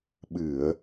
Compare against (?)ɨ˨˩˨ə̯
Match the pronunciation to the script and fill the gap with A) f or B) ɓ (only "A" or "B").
B